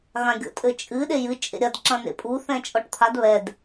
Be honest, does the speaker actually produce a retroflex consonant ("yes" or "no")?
yes